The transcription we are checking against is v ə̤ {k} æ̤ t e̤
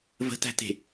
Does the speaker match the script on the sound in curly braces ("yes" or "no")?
no